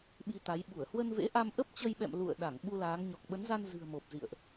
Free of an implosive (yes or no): no